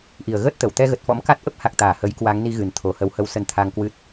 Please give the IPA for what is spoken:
ʔi˨˩ə̯ ɣəː˦˥t̚t̪ə˧˩wt̪ɛ˧ɣə˨˩t̚ fɔ̰˧˥mka˦˥t̚ ʔə˦˥p̚ha˨˩k̚t̪aː˧˩ hə˨˦jkwa˨˦ŋ ni˧ɣɨ˨˩n t̪ʰo˨˩hə˨˦whə˧w sə˧nt̪ʰa˧ŋkwɨ˦˥t̚

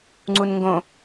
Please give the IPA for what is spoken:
ŋ͡ǀunŋɡõ

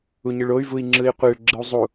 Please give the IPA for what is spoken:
uɲɯɭoy̯ vui̯ŋ͡ǁɯi̯qʷeɭ ɡ͡ǁɯu̯zˤu

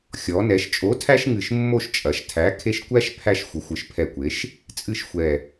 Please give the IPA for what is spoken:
xʲɔ˩˧nɛ˩˧ʃ t͡ʃʼo˨˥tʰæ˦ʃŋɨ˨˩ʃ mːo˦˨ʃt͡ʃʼɐ˩˧ʃ tʰæ˨˥ kʰe˦ʃ kʷæ˦ʃ pʰæ˦˨ʃ xʷə˩˧xʷɨ˩˧ʃpʰɛ˨˩kʷe˩˧ʃ | t͡sʼɨ˦˨ʃxʷɛ˨˩

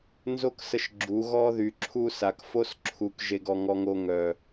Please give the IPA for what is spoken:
nzo˦ksə˧ʃ ɡ͡ǁu˨˦ ɣɔ˧ðy˨ǁʰu˧sa˨k fo˦sǁʰu˨k ʒe˧ɡɔ˧ŋɔ˧ŋo˧ ŋœ˨

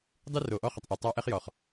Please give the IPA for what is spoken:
dˤɨ˦ro˨ʔɔ˦ χə˨tˤʔɨ˨ tˤɑ˦ʔɛ˦χjɔ˨χ

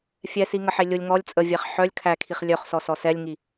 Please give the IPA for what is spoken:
fʲɛ siŋəħelʲʊlʲ ŋɔlʲ t͡sʼəvʲæχ ħœlʲ kʰækʰiχ lʲœχsɔsɔ sɛlʲŋi

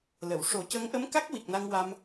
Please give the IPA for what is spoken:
lə˨˩˨w ʂo˨˩˦cə˧˥ŋʔə˧˥mka˦˥k̚ wi˨˩k̚na˧ŋwa˧m

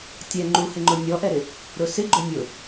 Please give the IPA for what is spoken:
tʲɛ ŋ͡ǃuhɪŋ͡ǃʊ nʲɔʔɛɾɪ | ɾʊsɪɡ͡ǃʊ nʲʊ

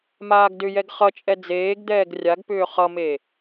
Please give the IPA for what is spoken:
maːɡdʏjɛɡ χʌt͡ʃʼɛ d͡zeːɡd̪ɛːɡ rʲaɡpʏː χʌme

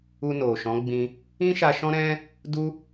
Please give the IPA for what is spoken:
u˧no˨ʃɔ̃˨˦ɡ͡bĩ˧ | ĩ˦ ʃa˧ʃɔ̃˦ɾɛ̃˦ | du˦

